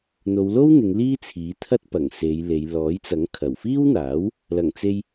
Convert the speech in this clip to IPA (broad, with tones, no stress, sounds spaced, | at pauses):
n̪ o˨˧ w l o˥ w n̪ ɪ˨˧ ŋ l iː˥ t͡sʰ iː˨˥ t̪ʰ ɐ˥ t̚ p ɐ˨˩ ŋ s e˨˧ j l e˨˧ j l ɔː˨˥ j t͡s ɐ˨˥ ŋ kʰ ɐ˨˩ w f iː˥ w n̪ aː˨˥ w | l ɐ˨˩ ŋ t͡s e˧ j